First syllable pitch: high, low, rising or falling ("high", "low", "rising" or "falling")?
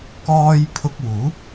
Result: high